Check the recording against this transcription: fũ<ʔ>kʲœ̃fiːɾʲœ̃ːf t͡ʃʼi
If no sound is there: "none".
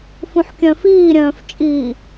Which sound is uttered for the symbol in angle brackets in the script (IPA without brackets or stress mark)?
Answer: ħ